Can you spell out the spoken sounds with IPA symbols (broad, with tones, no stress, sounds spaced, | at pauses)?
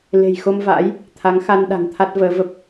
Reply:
l e̤˨˩ j x o˧ m v a̰ː˧˥ j | t̪ʰ a˨˦ ŋ x a˧ n ɗ a̤˨˩ ŋ t̪ʰ a˦˥ t̚ v əː˨˦ v ə˦˥ p̚